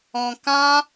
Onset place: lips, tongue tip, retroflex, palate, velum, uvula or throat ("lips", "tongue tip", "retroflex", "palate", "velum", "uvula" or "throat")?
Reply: velum